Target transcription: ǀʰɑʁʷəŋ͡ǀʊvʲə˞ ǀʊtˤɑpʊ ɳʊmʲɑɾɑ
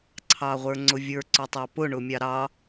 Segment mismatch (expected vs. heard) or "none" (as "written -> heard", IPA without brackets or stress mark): ə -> ə˞